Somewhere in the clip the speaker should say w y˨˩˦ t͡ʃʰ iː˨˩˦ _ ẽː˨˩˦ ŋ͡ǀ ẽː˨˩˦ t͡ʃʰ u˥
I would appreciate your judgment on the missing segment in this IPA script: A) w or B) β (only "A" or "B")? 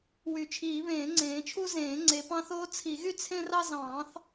B